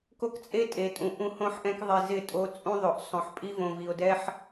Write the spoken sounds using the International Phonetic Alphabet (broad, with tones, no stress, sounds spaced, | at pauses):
k o˦ k t͡sʼ e˦ tʼ e˨ tʼ ũ˨ ʔ ũ˦ h õ˦ ħ ʔ ɛ̃˦ k ðˤ i˨ z ɪ˦˨ tʼ o˦ t͡sʼ ũ˦ ðˤ o˨ ʔ sˤ õ˨ ħ pʼ i˦ v õ˨ v i˨ o̯ d ɛ˦ ħ